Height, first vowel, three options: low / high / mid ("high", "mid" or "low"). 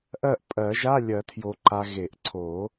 mid